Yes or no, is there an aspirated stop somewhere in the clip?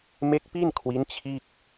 yes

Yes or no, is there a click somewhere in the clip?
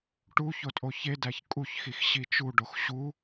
no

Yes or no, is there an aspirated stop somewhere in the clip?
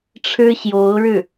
yes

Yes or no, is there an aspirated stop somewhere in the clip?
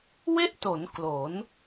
no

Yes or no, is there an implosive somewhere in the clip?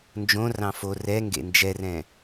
no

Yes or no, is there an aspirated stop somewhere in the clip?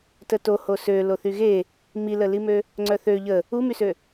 no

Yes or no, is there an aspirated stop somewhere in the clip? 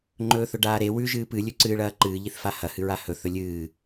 no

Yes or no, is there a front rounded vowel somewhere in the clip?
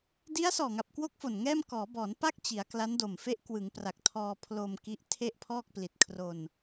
no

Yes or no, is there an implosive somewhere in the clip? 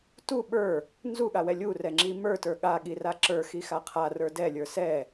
yes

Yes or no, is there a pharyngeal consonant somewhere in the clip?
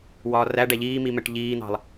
no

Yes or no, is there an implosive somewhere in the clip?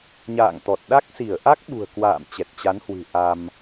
yes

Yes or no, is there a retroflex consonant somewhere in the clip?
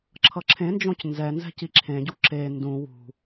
no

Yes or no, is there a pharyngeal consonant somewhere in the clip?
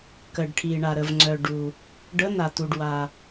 no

